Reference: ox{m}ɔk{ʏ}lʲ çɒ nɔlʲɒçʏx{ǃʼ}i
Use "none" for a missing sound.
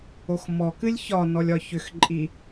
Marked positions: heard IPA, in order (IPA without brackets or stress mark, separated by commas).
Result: m, ɨ, ǃʼ